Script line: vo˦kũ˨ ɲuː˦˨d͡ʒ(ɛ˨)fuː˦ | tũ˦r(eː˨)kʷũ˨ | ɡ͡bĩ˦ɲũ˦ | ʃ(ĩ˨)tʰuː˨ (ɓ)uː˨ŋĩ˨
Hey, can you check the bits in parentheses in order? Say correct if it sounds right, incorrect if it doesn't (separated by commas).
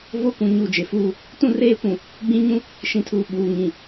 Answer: incorrect, incorrect, correct, correct